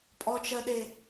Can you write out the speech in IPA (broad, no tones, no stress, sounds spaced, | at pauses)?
pʼ ɔ t͡ʃ ɜ ɗ e